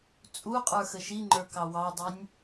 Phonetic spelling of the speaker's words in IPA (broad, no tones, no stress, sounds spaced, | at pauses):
t͡sʼ u qʼ ə˞ x ə ʃ i ŋ͡ǃ ə˞ k ɑ w ɑ dˤ i nʲ